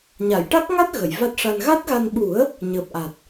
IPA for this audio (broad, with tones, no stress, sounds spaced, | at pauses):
ɲ a˨˩˨ j ʈ a˦˥ k̚ ŋ a˦˥ t̚ ɣ ə˨˩˨ j v a˦˥ t̚ ʂ a˧ n ɣ a˦˥ t̚ ɣ a˧ n ɓ u˨˩˦ ə̯ | ɲ əː˨˩ p̚ ʔ a˨˩ t̚